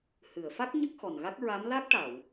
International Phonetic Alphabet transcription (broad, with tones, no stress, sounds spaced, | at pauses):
h ɨ˨˩˨ ə̯ f a˦˥ k̚ ɲ ə˦˥ k̚ x ɔ˨˩ n ɣ a˦˥ k̚ ɹ a˧˥ m l a˦˥ k̚ ʈ a˨˩˨ w